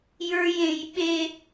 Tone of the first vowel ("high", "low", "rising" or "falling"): high